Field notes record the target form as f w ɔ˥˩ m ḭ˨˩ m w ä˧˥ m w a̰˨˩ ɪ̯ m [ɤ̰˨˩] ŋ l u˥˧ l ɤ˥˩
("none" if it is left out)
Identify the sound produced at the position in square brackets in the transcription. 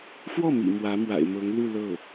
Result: ɤ˧˥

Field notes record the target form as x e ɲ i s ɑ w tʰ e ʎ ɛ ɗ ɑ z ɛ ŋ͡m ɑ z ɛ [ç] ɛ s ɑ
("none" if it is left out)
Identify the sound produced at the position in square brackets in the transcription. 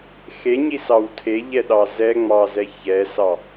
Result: ç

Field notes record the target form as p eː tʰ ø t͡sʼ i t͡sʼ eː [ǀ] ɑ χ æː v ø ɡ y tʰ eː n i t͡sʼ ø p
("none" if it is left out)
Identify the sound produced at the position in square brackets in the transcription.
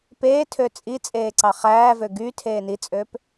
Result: ǀ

